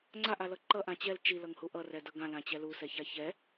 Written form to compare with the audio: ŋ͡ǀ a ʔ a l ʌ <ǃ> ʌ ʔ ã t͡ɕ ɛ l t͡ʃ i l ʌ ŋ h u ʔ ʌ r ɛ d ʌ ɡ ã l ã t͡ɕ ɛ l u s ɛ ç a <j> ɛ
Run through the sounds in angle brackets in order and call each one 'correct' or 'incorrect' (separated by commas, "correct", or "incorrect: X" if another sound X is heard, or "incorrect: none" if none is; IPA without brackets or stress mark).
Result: correct, incorrect: ç